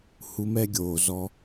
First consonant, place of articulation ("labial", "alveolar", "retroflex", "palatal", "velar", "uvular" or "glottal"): glottal